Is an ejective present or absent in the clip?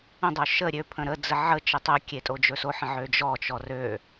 present